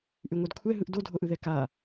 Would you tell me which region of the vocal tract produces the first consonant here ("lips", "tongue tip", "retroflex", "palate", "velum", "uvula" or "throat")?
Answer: throat